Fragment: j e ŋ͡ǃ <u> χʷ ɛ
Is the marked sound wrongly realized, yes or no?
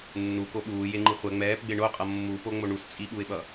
yes